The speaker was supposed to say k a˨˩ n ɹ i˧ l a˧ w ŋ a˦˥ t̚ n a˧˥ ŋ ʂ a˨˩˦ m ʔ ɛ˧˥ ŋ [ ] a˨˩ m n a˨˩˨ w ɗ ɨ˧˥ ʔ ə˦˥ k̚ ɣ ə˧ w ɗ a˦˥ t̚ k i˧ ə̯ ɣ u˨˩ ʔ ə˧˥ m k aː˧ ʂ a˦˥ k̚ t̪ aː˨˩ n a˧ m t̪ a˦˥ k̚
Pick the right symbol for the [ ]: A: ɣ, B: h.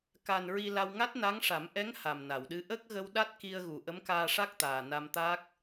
B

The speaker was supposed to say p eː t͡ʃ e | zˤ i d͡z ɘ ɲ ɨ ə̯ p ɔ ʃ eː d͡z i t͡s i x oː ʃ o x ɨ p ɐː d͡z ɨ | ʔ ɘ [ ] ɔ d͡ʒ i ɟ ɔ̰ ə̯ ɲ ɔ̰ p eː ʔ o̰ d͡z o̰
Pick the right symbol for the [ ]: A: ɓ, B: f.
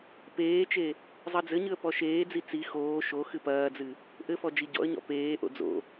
B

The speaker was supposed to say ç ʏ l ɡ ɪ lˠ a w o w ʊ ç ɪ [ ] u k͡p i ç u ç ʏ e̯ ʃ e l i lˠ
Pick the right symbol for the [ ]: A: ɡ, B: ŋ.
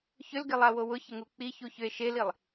B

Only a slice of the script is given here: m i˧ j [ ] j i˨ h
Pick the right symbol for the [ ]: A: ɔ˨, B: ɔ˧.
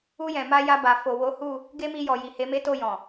A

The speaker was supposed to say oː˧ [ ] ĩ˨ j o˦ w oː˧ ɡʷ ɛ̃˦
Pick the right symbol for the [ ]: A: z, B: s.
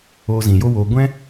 A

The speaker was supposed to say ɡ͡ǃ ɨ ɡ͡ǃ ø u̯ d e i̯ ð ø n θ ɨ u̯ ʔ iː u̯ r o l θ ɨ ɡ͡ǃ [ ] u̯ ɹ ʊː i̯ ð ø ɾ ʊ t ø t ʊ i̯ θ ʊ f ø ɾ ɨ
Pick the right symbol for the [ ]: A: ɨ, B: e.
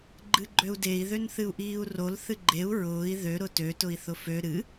B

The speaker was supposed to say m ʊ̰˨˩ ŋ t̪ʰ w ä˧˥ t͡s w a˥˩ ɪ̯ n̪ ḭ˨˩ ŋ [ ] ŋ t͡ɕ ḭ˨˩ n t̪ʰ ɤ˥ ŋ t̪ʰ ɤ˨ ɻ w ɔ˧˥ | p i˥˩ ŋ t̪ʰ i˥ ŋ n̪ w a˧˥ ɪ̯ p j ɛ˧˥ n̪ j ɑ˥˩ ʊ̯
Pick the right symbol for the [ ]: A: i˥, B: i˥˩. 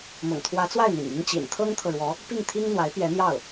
A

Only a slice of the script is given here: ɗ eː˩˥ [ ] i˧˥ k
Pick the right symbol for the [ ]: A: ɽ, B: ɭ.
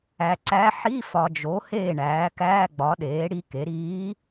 A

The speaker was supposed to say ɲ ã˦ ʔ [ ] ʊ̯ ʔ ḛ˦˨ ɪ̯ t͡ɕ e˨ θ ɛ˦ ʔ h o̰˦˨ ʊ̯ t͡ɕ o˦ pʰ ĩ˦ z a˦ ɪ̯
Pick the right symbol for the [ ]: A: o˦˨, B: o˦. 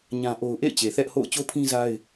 B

